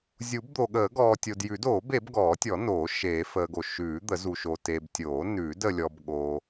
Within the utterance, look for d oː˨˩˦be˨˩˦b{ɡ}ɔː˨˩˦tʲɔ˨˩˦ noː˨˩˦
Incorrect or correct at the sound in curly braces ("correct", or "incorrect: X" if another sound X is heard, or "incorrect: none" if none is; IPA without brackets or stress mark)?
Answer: correct